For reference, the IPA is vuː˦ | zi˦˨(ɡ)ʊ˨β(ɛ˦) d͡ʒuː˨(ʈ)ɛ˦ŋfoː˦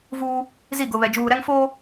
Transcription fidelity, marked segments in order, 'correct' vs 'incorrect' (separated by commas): correct, incorrect, incorrect